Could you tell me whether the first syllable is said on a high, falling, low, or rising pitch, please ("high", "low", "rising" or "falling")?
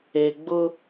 low